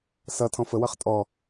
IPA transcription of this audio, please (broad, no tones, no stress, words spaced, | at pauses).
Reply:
sʌ tʰɔ̃fəwʌχ tʼɔ